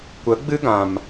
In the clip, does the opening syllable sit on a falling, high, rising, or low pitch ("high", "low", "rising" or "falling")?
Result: rising